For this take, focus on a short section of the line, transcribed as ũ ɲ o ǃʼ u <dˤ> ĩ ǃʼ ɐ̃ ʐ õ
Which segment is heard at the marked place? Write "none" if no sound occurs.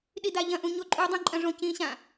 dˤ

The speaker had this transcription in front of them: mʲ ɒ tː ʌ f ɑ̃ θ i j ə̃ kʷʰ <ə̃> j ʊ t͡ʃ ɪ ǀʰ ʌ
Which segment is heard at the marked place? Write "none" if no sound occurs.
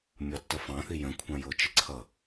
ɑ̃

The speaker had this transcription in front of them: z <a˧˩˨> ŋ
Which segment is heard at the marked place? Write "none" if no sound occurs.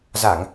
a˧˩˨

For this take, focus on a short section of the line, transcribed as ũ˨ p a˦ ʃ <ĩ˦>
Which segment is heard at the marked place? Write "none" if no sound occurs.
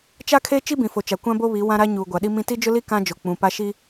i˦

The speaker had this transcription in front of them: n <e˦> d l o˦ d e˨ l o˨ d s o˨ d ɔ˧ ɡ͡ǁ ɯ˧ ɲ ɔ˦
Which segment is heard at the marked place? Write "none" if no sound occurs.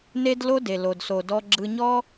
e˦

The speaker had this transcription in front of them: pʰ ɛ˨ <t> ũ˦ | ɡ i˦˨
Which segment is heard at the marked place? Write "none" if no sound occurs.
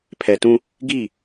t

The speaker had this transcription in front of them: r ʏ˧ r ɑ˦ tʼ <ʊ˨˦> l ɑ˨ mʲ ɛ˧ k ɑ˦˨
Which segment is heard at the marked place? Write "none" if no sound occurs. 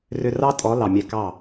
ɔ˨˦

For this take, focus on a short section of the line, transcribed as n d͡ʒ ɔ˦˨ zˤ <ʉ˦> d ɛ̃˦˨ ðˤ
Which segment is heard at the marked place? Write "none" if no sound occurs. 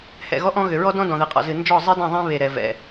ɨ˦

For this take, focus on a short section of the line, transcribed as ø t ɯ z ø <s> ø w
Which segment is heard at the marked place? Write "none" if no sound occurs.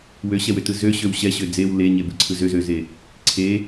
ɕ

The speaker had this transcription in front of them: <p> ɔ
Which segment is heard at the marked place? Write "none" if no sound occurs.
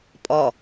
pʼ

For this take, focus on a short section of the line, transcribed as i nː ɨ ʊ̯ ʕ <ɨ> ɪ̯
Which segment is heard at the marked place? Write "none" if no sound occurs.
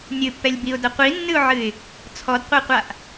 ɨ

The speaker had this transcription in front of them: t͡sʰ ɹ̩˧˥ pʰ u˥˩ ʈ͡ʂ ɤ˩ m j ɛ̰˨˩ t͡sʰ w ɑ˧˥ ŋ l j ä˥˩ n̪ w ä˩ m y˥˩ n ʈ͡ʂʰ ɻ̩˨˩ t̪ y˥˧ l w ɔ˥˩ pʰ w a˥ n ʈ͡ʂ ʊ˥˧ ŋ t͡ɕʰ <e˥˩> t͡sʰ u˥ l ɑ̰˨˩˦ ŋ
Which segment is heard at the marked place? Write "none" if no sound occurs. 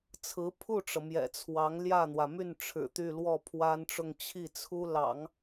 i˥˩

